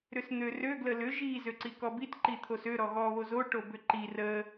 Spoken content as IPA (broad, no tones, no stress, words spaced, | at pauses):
ɾʏsn̪ørø ɡləlʏ ʒi zøǀikɔbit ǃit̪ʰosø ɾɔɣɔ βozo ʈobʏǃi rə